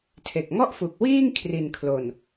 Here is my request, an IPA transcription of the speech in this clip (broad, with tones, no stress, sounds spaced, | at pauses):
tʰ e˨˩ k̚ ŋ ɔ˥˩ ʔ f u˨˩ k̚ w iː˥˩ ŋ kʰ r i˨˩ n kʰ l o˨˩ n